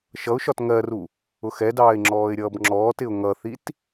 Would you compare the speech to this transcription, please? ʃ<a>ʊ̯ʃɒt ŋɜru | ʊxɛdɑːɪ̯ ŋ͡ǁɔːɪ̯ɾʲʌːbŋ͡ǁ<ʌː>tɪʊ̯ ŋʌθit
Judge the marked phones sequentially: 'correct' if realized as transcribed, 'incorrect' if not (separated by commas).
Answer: incorrect, incorrect